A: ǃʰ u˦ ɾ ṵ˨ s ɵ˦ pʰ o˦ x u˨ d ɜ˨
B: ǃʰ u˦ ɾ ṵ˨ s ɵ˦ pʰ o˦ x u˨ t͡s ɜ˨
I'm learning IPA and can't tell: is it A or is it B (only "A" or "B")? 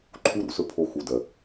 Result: A